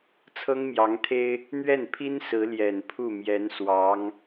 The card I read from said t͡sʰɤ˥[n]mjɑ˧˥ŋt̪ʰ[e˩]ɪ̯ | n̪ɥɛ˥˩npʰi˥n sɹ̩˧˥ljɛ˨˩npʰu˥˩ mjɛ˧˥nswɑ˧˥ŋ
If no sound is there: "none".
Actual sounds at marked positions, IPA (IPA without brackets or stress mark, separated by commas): ŋ, e˥